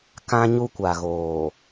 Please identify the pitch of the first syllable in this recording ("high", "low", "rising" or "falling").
high